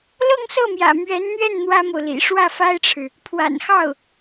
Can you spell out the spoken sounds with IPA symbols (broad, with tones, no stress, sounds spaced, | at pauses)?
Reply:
l ɤ˥˧ ŋ s ɤ˥˩ m j ä̰˨˩ m ɥ ɛ˧˥ n n̪ ɥ ɛ˥˩ n n̪ w ä˥ m o˨ ʊ̯ l ḭ˨˩ ʂ w ä˥˩ f a˥ ɪ̯ ʈ͡ʂʰ ɻ̩˨ | pʰ w a̰˨˩ n x ɑ˥˩ ʊ̯